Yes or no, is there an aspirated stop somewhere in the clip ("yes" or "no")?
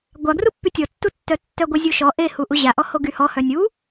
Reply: no